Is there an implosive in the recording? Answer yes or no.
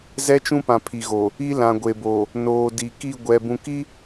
no